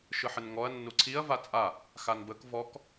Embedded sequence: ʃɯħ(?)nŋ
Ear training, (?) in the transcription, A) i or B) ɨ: B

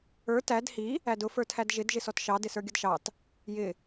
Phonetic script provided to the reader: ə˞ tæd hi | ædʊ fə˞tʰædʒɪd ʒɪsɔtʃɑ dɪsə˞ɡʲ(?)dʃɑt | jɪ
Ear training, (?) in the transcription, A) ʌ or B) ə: A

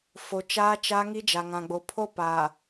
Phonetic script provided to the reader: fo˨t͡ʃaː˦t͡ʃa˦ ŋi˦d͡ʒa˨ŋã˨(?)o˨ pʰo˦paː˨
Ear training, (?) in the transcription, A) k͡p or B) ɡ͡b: B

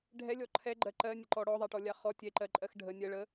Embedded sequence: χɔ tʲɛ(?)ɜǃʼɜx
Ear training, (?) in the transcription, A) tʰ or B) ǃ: B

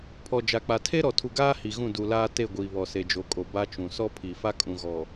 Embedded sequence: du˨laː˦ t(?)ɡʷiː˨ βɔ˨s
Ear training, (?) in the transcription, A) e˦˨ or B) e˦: A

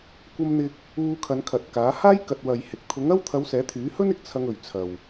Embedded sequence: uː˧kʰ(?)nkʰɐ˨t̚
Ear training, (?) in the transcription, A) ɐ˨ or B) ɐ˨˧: B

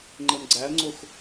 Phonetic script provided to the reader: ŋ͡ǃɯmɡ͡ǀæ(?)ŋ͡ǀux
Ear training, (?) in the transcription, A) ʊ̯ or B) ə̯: B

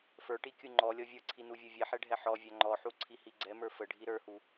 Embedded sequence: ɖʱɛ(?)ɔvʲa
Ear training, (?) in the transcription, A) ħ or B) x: A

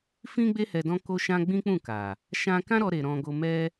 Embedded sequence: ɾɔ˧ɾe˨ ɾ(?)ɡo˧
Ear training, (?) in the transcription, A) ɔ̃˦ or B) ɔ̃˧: B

